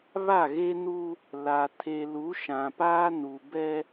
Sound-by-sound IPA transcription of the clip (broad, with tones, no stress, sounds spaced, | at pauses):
β a˦˨ ɣ e˦ n u˦ | l a˨ tʰ e˨ l u˨˦ ʃ ã˨ p aː˦ n u˨ b ɛ˦